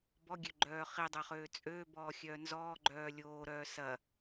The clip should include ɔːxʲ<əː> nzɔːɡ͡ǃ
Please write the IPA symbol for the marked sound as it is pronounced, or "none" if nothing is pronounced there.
œː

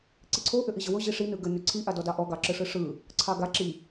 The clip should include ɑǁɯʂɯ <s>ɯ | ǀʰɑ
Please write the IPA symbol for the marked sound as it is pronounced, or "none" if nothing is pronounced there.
ʂ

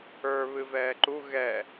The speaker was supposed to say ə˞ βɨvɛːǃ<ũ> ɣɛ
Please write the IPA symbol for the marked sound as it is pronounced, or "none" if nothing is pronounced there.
u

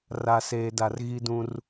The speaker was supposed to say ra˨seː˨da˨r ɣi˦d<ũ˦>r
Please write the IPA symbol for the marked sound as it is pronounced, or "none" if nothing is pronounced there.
ũ˦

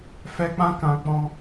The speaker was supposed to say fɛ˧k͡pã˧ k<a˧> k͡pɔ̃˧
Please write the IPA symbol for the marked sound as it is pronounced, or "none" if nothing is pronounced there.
ã˧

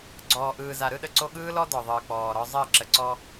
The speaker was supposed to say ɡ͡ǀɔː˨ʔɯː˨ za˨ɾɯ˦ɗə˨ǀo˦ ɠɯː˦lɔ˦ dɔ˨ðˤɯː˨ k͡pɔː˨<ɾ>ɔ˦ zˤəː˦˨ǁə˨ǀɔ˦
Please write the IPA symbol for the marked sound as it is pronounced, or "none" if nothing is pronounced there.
ɾ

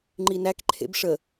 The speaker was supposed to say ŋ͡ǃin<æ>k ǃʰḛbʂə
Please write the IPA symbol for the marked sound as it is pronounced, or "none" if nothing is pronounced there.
æ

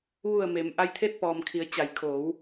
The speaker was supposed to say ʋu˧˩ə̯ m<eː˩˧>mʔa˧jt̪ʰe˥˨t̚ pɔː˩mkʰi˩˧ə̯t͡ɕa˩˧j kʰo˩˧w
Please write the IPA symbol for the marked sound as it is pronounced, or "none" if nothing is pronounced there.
eː˩˧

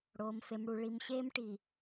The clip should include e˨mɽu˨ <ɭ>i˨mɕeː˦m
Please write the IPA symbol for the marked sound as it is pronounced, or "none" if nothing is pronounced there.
ɭ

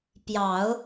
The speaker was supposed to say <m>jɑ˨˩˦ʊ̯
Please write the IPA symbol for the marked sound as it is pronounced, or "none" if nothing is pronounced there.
p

